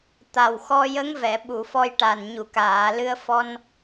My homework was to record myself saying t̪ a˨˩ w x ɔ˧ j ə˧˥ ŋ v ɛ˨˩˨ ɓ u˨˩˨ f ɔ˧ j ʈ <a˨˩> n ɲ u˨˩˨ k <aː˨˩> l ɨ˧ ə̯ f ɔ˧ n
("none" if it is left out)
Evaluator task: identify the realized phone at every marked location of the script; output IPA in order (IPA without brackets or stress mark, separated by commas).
a˨˩, aː˨˩˨